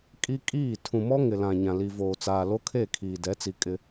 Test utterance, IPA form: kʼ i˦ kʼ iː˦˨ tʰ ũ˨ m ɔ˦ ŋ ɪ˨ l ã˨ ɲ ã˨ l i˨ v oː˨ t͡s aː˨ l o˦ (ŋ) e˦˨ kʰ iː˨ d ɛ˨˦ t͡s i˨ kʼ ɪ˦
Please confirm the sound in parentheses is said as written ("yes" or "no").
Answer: no